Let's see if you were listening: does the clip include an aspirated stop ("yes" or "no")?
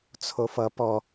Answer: yes